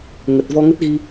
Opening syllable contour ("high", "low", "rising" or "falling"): low